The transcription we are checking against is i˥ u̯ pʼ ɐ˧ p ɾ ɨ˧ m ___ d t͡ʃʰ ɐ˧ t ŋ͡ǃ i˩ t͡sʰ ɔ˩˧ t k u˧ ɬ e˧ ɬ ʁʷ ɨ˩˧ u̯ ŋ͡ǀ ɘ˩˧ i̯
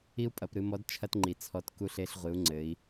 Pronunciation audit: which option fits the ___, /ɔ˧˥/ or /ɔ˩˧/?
ɔ˧˥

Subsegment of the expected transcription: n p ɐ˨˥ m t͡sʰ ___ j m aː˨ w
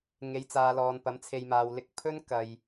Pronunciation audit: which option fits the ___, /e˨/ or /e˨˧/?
e˨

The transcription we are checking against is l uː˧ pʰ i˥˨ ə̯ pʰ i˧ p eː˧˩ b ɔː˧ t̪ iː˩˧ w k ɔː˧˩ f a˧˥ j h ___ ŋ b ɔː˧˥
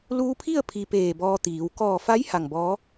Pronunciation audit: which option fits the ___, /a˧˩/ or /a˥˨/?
a˧˩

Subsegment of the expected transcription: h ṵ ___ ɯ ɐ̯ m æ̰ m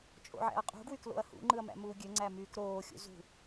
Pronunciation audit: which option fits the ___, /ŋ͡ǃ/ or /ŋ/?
ŋ͡ǃ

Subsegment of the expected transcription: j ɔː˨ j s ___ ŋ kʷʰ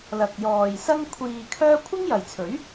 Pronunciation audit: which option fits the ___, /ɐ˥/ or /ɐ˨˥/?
ɐ˥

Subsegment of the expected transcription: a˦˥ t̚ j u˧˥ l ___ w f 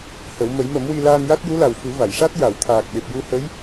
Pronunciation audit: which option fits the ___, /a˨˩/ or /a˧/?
a˨˩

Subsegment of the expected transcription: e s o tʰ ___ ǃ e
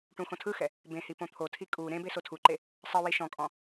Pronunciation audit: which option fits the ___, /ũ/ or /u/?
u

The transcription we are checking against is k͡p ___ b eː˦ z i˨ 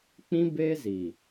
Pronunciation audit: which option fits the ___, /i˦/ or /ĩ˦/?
ĩ˦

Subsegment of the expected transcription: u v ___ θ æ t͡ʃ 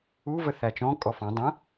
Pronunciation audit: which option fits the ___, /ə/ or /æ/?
ə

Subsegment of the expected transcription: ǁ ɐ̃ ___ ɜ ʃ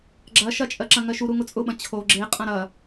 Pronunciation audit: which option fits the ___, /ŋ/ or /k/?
ŋ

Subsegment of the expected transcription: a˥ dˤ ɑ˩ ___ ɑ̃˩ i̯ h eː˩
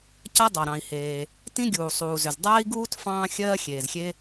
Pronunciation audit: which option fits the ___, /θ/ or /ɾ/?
ɾ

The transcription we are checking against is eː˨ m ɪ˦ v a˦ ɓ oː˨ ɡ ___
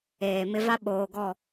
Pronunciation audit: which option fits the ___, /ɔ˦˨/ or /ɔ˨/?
ɔ˦˨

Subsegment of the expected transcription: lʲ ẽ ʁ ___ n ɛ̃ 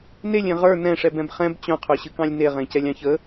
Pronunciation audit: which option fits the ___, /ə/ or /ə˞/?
ə˞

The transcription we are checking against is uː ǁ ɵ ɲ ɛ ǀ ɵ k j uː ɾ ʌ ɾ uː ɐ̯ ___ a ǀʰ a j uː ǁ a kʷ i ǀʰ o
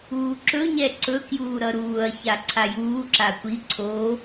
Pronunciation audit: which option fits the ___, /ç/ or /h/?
ç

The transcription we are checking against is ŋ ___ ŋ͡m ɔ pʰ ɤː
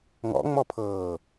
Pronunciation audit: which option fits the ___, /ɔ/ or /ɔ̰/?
ɔ̰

